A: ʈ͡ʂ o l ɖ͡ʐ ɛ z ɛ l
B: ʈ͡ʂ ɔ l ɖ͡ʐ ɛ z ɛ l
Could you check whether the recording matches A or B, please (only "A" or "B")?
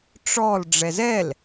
B